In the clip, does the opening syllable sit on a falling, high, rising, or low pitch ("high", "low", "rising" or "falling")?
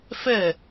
falling